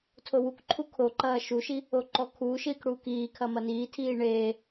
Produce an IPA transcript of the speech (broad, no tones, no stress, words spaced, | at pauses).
tʰowukǃʰu kʰoǃɐː ʃuʃi | oǃɔkʰuːʃiːk ɽuːkiːkʰɐ mɐniːtʰiː ɳeː